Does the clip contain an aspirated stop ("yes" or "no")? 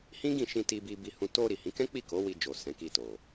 no